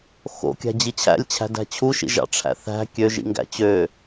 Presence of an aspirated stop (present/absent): present